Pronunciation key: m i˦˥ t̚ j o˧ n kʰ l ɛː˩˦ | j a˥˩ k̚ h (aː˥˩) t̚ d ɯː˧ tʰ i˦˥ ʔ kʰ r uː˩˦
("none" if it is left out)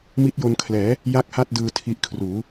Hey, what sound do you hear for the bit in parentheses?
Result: a˥˩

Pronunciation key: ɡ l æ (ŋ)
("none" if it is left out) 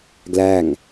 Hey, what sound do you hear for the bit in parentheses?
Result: ŋ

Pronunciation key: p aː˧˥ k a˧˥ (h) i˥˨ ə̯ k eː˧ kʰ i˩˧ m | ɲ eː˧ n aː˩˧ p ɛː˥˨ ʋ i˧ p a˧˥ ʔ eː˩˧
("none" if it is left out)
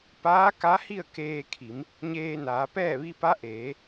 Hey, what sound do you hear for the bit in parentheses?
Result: h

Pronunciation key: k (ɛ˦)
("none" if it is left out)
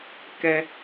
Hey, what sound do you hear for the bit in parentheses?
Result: ɛ˦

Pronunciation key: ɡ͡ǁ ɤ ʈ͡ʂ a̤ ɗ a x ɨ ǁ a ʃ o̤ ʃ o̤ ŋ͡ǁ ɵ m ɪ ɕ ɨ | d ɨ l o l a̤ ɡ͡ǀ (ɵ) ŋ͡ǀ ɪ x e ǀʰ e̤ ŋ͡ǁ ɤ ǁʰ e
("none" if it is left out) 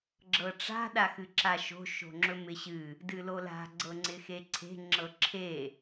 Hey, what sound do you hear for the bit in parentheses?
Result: ɤ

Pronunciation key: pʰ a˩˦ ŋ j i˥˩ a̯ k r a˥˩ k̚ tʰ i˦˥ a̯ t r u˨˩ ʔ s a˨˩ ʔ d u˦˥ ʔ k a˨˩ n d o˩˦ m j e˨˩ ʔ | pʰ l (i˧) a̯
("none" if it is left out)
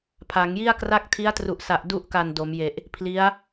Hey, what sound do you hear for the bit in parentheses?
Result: i˦˥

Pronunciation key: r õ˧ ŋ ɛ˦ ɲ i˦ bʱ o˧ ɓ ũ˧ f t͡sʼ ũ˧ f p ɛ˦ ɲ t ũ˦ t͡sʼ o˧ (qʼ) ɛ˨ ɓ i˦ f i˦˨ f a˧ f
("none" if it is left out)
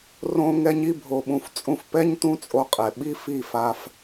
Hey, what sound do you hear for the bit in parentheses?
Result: qʼ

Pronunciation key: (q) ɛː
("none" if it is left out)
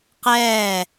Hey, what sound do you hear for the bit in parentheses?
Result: q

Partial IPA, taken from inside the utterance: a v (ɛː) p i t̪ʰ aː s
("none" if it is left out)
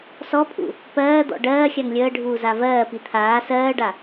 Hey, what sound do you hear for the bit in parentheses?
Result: ɜː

